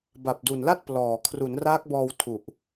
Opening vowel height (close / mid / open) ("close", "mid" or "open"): open